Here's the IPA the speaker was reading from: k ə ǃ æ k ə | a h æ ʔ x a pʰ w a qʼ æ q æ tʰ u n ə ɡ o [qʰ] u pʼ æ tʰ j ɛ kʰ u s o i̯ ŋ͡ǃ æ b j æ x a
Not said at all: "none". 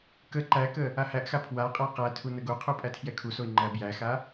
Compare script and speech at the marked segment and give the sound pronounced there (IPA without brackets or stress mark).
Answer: qʰ